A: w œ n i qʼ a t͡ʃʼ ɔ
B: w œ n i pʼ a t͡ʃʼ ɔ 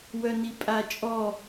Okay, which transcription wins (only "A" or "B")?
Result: B